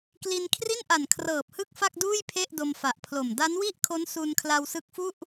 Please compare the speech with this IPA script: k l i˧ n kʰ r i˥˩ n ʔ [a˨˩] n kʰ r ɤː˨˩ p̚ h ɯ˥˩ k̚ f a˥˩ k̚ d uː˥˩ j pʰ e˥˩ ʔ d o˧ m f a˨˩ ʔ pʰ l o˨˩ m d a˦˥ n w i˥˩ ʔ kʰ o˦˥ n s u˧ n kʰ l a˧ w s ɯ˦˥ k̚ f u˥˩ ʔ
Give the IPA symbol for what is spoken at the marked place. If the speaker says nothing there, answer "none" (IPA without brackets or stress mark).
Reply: a˨˩